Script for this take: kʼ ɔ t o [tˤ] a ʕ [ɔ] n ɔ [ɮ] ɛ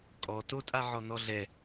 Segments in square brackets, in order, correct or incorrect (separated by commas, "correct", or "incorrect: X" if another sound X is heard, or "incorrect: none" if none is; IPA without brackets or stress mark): incorrect: tʼ, correct, correct